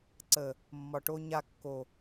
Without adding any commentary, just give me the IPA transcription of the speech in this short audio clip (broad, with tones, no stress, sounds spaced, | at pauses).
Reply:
ǀ ə˨ | mː ɒ˨ ʈ o˦ ɲ a˦ kː o˨